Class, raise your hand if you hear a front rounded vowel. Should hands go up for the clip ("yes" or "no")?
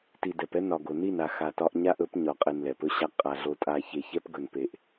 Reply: no